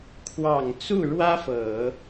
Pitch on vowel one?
low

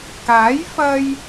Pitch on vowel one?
rising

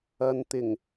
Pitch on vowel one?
low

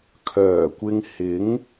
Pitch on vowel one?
low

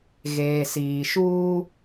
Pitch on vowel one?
low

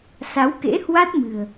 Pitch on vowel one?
rising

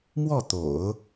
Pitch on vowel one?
falling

